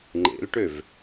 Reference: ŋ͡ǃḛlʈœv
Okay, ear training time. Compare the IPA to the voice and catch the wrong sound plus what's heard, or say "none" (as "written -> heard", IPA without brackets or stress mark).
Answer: œ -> ø